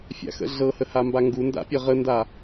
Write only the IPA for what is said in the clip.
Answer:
fʲa̰xə̰ɮɤhə hambaŋɡunda̰ pʲʌʁənda

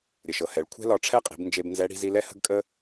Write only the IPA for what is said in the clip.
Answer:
ɾʲə˩ʃɤ˩hɛ˩˧ɭ kʷʰɛ̤˥lɒ˧ʈ͡ʂʰɛ˥qʼi̤˩˧b nd͡ʒe˧bnzɛ˧˥ ɽi̤˧zi˧lɛ˥ hə̤˥ɡkʼə˥

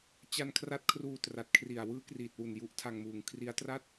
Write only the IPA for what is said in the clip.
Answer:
t͡ɕa˧nkʰra˦˥t̚ kʰruː˧tra˨˩t̚kʰri˨˩a̯ wɯː˦˥kriː˨˩t̚wu˨˩n ju˦˥ʔtʰa˧ŋmuː˨˩ŋ kʰri˦˥a̯tra˥˩t̚

